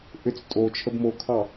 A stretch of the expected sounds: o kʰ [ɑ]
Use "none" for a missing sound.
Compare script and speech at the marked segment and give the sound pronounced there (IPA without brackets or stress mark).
ɑ